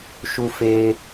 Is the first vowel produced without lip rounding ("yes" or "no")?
no